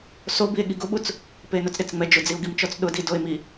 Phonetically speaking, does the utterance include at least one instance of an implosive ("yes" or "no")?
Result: yes